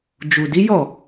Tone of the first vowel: low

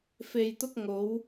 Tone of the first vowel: low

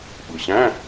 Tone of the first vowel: low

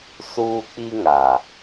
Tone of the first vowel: high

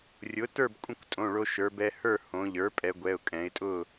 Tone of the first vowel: rising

